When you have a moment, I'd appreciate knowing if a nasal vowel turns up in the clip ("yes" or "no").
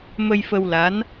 no